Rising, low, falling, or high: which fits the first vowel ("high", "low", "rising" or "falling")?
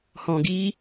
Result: low